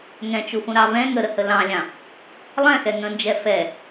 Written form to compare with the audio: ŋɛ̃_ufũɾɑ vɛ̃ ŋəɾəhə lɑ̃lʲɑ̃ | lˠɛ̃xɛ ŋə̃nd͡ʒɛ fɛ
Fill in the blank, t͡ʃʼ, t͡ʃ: t͡ʃ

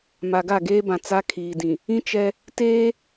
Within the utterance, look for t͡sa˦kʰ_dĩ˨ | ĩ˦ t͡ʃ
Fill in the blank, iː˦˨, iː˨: iː˨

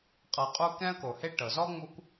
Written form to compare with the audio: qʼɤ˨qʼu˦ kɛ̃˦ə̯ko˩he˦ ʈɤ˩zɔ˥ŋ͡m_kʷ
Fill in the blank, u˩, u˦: u˦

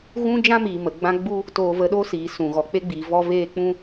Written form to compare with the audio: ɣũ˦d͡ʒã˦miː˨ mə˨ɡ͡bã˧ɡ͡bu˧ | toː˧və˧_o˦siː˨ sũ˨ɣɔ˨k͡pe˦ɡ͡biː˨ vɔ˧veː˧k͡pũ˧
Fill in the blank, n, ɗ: ɗ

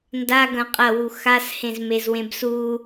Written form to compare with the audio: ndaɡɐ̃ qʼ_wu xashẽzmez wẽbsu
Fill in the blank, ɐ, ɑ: ɐ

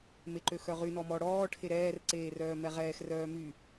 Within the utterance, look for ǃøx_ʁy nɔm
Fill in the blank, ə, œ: œ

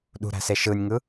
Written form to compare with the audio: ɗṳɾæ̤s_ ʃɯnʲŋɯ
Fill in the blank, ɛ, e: e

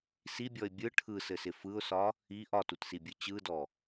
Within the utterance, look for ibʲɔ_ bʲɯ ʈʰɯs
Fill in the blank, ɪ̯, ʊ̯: ɪ̯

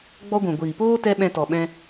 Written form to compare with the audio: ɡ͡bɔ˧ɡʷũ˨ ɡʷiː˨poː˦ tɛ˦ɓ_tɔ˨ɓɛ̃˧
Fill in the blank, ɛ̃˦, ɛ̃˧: ɛ̃˧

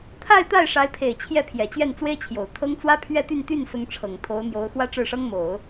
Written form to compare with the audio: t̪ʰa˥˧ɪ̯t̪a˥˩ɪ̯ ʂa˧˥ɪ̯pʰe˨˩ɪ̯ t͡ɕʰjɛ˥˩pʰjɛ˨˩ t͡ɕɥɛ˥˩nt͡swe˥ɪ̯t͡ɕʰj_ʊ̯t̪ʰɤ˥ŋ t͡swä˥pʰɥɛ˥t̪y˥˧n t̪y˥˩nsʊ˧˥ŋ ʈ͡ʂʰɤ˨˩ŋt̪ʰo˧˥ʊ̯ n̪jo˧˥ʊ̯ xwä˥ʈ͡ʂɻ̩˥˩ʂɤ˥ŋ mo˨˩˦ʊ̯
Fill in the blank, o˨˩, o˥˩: o˨˩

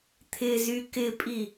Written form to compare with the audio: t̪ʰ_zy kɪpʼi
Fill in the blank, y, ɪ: ɪ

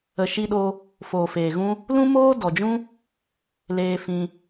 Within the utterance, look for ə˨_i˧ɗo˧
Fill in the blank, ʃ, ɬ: ʃ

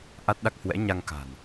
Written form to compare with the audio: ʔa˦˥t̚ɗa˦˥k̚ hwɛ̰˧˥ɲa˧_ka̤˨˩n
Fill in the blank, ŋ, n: ŋ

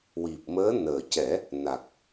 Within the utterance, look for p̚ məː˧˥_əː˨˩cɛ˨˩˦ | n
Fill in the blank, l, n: n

